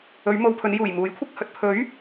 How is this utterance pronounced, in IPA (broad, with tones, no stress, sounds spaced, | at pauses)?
ɵ˨˧ ɥ m o˨ w pʰ ɵ˨˧ n j uː˨˩ j m uː˨˥ j kʷʰ ɪ˧ k̚ h ɵ˨ t̚ pʰ ɵ˨˥ ɥ